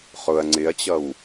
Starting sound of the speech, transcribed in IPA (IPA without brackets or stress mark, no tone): χ